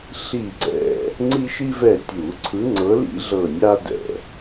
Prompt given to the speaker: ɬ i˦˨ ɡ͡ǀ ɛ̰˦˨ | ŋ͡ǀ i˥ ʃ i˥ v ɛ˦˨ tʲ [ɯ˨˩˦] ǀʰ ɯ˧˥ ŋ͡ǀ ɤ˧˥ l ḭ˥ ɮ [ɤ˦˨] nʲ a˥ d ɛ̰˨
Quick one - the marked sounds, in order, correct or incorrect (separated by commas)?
incorrect, correct